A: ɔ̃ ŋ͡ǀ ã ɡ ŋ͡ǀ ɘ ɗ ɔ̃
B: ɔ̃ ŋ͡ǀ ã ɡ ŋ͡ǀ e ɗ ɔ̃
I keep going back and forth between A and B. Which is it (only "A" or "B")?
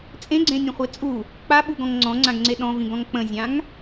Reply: B